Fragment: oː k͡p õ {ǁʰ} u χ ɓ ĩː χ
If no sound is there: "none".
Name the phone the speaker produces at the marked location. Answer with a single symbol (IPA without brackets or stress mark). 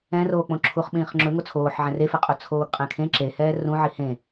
ǁʰ